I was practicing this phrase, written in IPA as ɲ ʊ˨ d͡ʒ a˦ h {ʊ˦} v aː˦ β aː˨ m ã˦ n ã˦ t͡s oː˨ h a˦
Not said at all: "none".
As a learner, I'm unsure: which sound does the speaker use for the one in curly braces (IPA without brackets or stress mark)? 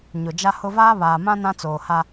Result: ʊ˦